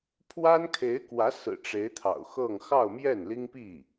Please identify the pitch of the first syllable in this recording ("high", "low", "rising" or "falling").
high